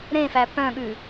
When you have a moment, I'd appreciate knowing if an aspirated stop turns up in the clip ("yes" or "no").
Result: no